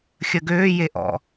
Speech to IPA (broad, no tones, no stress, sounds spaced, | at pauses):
xʲ ə ɡ øː j e ʔ ɔ̰